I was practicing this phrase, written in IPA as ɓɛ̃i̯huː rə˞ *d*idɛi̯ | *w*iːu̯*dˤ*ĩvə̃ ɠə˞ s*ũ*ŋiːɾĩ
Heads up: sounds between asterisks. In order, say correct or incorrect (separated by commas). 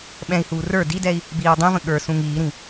correct, incorrect, correct, correct